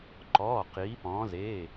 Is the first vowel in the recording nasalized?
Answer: no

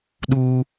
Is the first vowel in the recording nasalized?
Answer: no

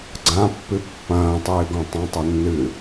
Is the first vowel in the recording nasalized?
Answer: yes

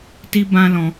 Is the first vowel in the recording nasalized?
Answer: no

